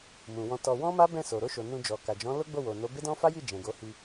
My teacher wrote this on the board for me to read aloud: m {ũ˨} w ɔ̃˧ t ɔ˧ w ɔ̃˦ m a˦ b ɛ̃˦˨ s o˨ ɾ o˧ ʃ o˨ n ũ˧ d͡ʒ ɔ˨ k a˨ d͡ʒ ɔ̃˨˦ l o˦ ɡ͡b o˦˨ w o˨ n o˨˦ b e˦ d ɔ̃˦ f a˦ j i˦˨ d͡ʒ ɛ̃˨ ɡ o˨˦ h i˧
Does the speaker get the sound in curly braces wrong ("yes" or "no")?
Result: no